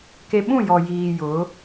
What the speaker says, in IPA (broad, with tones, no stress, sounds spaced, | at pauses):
k e˨ ɓ ũ˦˨ j ɔ˨ j iː˨ j ʊ˨˦